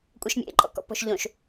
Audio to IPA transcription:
kʷʼ ɛ ʃ mʲ ḛ ǃʼ ɔ̰ k ɔ̰ p ɔ̤ ʃ ʎ õ ʃ

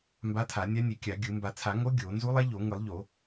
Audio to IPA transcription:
m b a˧˥ tʰ a˨˩˦ nʲ a˧˥ nʲ e˨˩˦ kʲ a˨˩˦ ɡʲ ɯ˨˩˦ m b a˨˩˦ t͡sʰ a˨˩˦ ŋ o˧˥ ɡʲ o˨˩˦ n z u˧˥ lˠ ɛ˧˥ ʎ o˨˩˦ ŋ ɯ˨˩˦ lˠ ʎ o˨˩˦

